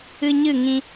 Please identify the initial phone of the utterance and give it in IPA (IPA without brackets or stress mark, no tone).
ɨ